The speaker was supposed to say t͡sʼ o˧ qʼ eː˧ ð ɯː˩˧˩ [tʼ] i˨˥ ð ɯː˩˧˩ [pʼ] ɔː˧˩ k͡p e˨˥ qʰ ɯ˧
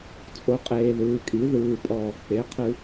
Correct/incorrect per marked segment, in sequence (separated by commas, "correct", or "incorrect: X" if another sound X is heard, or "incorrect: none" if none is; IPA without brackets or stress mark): incorrect: kʼ, correct